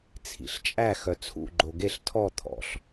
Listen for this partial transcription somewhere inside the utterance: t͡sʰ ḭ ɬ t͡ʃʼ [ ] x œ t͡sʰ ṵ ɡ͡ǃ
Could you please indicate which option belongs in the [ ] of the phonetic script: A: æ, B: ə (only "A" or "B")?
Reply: A